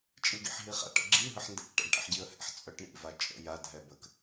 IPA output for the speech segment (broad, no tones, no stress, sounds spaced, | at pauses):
t͡ʃʼ i ɡ ḭ ħ ɦ i χ a̰ ʈ ə̰ ɡ͡ǁ i ɦ ə ħ n d ɛ̰ k ʈ a̰ ɖ ʈ ɛ̰ ħ ɟ i ə̯ h ɛ̰ ħ t͡sʼ œ ʈ ɳ ḭ v a t͡ʃʼ ə̰ j a dʱ ɛ b ə k